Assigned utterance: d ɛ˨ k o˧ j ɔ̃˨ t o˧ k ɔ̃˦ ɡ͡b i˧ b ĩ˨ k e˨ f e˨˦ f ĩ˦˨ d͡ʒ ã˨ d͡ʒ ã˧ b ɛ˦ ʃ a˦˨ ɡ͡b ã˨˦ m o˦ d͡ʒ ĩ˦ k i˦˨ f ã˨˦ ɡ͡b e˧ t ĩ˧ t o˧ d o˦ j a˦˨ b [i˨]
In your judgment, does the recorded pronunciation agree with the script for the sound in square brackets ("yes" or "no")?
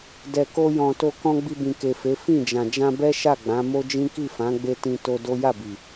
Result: yes